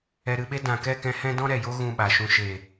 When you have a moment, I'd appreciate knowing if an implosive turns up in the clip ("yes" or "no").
yes